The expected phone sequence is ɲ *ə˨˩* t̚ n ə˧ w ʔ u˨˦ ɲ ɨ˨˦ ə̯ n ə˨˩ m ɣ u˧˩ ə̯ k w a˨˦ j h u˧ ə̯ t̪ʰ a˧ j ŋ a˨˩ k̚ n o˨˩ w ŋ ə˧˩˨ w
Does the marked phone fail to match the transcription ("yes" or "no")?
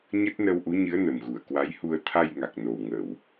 yes